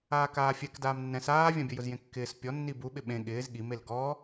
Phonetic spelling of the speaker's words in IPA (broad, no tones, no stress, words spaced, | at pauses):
aːkaːfʲɛk daːmnːɛ̃s aːvʲãbʲʊjʊz jẽkːɪːs pʲɔ nːibu ɓɪɓẽ ɠɪːz ɠimel ɡɔ